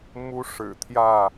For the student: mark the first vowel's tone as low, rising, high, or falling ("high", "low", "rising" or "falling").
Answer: high